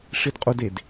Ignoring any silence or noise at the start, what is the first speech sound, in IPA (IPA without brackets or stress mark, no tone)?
ʂ